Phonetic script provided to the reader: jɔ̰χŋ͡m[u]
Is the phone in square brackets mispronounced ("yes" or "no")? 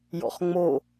yes